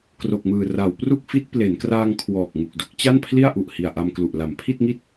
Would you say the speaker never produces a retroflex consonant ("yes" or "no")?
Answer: yes